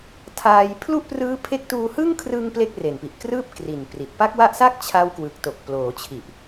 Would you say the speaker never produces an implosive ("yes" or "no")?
yes